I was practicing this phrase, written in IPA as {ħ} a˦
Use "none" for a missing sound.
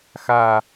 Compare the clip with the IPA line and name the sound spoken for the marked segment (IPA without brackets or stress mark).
x